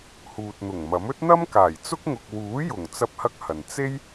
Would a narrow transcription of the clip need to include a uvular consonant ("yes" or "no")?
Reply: no